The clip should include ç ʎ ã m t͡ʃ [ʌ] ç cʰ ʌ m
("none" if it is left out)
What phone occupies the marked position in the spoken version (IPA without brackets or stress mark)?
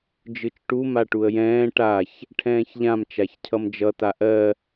a